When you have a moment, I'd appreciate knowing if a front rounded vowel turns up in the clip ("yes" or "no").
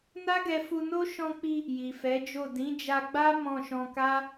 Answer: no